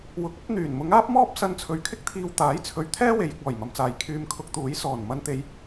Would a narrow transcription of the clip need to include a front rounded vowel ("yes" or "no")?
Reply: yes